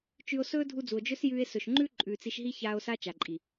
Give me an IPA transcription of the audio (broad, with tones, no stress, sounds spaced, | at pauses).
t͡ʃ ʉ˧ o̯ s ɵː˦ dʱ u˧ d͡z u˨ o̯ d͡ʒ ɵ˦ s j ʉː˧ e̯ s ɵ˨ ʃ ŋ͡ǃ ʉ˦ ǃʼ ʉː˨ t͡s i˧ ʃ ɦ i˦ ç aː˦ o̯ s a˦ t͡ʃ a˨ ǃʼ i˨